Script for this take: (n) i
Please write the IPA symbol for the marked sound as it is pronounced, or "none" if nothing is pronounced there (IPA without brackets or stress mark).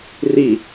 r